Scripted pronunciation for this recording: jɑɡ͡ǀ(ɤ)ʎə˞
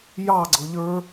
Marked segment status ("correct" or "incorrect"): correct